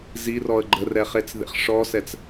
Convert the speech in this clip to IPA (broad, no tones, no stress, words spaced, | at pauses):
zirɔə̯ ɡ͡ǃərɛχet͡s ðḛχʂɔsɛt͡s